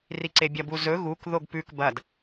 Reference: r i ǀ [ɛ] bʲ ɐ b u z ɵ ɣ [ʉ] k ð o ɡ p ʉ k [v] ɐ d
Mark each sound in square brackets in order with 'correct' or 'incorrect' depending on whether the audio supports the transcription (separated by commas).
incorrect, incorrect, incorrect